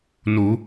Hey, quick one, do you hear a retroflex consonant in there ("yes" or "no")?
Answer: no